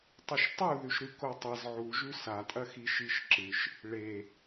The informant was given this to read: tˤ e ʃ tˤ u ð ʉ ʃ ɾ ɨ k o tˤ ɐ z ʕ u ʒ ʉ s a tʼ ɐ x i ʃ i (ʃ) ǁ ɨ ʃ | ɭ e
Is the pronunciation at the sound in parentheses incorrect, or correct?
correct